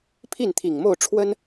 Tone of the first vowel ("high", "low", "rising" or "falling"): falling